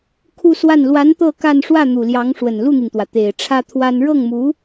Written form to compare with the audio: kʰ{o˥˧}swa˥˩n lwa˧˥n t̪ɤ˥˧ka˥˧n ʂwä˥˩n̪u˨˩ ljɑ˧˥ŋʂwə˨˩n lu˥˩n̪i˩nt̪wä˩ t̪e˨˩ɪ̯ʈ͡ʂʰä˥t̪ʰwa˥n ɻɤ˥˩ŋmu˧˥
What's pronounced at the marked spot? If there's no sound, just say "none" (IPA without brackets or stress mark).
u˥˧